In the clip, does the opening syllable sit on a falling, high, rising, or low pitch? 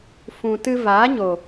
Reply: low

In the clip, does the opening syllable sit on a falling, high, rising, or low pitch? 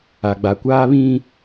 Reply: low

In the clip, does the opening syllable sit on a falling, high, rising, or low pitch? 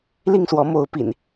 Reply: falling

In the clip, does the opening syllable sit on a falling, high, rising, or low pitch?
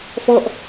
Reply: falling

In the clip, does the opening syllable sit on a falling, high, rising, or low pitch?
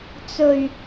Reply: low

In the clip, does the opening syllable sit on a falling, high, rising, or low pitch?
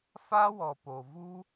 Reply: high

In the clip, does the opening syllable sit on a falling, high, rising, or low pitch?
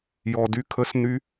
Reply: low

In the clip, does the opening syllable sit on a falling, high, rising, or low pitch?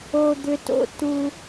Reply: high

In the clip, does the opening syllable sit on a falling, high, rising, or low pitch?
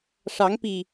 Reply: rising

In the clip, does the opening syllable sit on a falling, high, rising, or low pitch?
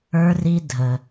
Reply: high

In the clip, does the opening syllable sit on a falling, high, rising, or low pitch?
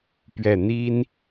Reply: falling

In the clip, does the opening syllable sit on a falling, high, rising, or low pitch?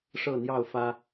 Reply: falling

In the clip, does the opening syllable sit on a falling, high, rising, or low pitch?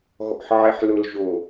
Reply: low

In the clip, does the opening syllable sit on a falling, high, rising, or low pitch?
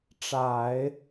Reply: low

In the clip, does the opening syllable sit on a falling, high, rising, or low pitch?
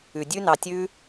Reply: low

